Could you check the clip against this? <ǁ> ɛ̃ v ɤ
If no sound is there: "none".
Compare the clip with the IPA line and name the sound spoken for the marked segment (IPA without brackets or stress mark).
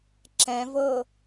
ǁ